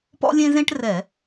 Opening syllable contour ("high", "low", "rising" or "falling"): high